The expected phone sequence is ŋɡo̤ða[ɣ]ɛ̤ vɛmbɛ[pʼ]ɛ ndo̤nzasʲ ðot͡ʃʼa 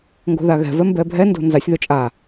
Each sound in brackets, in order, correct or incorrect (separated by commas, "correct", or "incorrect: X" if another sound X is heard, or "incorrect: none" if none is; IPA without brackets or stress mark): correct, incorrect: bʱ